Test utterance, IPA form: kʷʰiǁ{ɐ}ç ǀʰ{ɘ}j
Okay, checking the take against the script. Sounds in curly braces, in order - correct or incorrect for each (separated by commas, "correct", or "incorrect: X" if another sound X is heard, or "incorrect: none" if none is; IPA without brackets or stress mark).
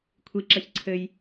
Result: correct, correct